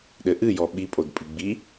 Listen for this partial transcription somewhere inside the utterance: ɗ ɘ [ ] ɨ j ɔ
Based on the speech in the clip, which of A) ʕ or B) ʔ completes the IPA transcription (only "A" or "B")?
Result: B